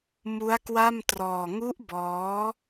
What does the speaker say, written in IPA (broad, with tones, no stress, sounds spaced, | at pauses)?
m u˦˥ a̯ k w a˥˩ m t r ɔː˧ ŋ u˦˥ ʔ b ɔː˦˥